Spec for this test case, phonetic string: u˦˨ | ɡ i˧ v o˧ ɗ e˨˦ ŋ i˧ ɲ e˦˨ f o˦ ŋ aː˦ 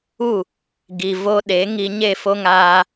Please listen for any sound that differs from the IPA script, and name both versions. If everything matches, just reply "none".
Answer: none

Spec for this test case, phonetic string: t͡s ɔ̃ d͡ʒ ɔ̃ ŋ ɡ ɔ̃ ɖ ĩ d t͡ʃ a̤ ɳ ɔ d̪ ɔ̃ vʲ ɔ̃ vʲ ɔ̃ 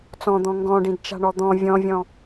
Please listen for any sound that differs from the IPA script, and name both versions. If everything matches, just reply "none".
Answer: d͡ʒ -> d̪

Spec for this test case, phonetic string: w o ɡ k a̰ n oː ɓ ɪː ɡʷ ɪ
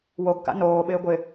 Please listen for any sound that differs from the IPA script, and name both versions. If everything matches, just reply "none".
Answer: none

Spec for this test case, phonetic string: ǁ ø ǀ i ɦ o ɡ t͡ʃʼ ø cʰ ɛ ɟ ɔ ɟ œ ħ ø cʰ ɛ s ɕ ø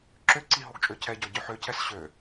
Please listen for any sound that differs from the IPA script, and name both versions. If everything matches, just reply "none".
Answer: none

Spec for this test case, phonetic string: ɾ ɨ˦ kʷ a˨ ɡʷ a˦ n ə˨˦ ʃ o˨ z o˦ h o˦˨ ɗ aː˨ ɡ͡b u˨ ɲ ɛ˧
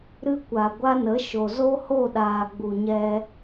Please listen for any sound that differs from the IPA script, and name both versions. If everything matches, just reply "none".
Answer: none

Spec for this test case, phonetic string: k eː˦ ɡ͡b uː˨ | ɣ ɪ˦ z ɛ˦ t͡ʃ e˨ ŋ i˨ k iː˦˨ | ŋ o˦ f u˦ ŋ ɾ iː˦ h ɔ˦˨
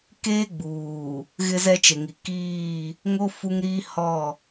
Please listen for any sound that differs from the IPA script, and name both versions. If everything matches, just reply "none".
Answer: none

